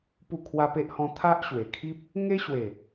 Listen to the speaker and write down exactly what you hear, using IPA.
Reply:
pu˥˧kʰwa˦pe˦ʔhɔ̃˦ t̪ʰa˦ʔɕwe˨˩kʰi˦p̚ | ŋe˦ɕwe˨˩

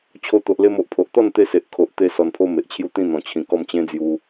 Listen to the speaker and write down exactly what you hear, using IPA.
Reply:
t͡ɕʰo˧t̪o˨ʔle˧m o˨ʔpʰo˨ʔt̪ɔ˥˧nt̪e˧ se˨ʔkʰo˨ʔ t̪e˦ sɔ˧npʰo˦me˨ʔt͡ɕʰju˥˧ t̪ĩ˥˧n̪ɔ̃˨˩ t͡ɕʰĩ˨˩ kɔ˥˧mt͡ɕẽ˦d͡zju˧

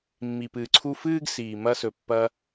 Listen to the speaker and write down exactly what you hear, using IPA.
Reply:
mːi˨pɨː˨ǀʰu˧ fɨː˦ɡ siː˨mɐ˧sɵ˨ pːɐ˧

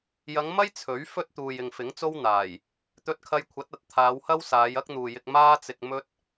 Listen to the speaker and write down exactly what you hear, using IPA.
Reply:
jɐ˨˧ŋmɐ˥j t͡sʰɵ˨˥ɥfɵ˥t̚ t̪uː˨jɪ˨ŋfɪ˨˥ŋt͡so˥w n̪aː˨˩j | t̪ɵ˧t̚kʰɐ˧jkʷʰɐ˨˥t̚ ɐ˨t̚ t̪ʰaː˨˧whɐ˥wsaː˨˧j ɐ˥k̚n̪uː˨jɪ˧k̚ maː˥t͡sɪ˧k̚ mɵ˥t̚

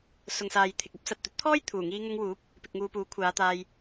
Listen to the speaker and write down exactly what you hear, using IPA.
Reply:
sʊ˨ŋsaː˨j t̪ʰɪ˨k̚ɐ˥p̚sɐ˨t̚ t̪ɵ˨˥t̚t̪ʰɔː˥j t̪ʰuː˨˩ŋiː˧ ŋʊ˧ŋwuː˨˥p̚ | pɪ˧k̚ŋuː˧puː˨˥ kʷʰaː˨˧t̪aː˧j

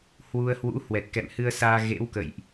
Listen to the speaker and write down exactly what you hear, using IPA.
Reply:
hwu˧ə̯hwṵ˧˥ hwɛ˨˩t̚kɛ̰˧˨mhɨ˧ə̯saː˧ ɣḛ˧˥wkə̰˧˨jʔ

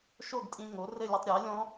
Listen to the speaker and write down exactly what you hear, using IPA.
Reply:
ʃo˥˨ɡtʼĩ˧ ŋo˩˥rɘ˥˨lʲɛ˧tˤ ɾʲa˩˥lʲɔ̃˦˥

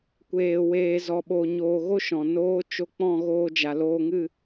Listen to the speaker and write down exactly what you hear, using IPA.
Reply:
kʷeː˧weː˧ zɔ˧ɓo˧ ɲoː˧ɣo˦ʃɔ̃˨ noː˦ t͡ʃo˧k͡pɔ̃˦˨ ɣoː˧d͡ʒa˨loː˧ŋɨ˦˨

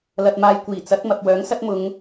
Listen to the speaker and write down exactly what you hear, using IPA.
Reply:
lɐ˧t̚maː˧j kʷiː˨˩t͡sɐ˨˥t̚mɐ˨p̚ wœː˨˥ŋsɐ˥t̚mʊ˨˧ŋ

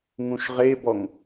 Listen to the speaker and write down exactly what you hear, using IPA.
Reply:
ŋũʃʁebɔŋ

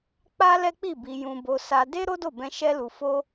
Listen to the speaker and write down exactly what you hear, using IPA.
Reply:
k͡pa˦lɛ˦k͡pi˦˨ bi˧jũ˧bo˧ sa˧ de˦ ɾo˦do˦˨bɛ̃˧ ʃɛ˦lu˧ fo˦

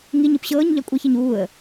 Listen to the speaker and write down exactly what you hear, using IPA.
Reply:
ŋiɲɯp ɕɤːɲʎɑ kʷʼəçiɲ uːə̯

